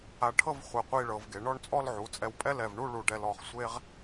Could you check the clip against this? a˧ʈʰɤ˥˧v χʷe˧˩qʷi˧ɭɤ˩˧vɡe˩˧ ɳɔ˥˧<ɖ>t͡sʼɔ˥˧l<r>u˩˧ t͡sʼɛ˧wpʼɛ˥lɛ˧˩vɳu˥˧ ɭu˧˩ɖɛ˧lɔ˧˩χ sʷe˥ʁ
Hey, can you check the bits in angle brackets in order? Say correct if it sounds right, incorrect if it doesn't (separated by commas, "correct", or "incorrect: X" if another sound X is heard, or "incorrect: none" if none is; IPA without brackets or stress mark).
incorrect: ɳ, incorrect: ʕ